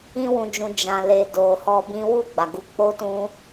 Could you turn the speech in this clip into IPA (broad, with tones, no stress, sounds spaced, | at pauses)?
ĩ˧ w ũ˨ d͡ʒ ũ˨ d͡ʒ ã˨ l e˨ d o˨ h ɔ˧ b ĩ˦ w u˦˨ ɡ͡b a˨ ɡ u˨˦ k͡p o˦ t ũ˦